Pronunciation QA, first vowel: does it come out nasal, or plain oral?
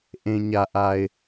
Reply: nasal